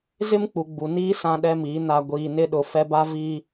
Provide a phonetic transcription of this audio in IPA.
z ɪ˦ m k͡p u˨ ɡ͡b u˨ n iː˦ s ã˦ ɗ ɛ˦ m iː˨˦ n a˨ ɡʷ iː˨ n ɪ˦ ɗ ʊ˨ f ɛ˦ b a˦ v iː˦

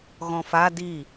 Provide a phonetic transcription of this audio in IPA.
ɣ ɔ̃ f a d i

